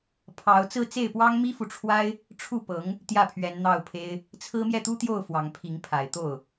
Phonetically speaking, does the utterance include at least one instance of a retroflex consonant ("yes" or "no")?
yes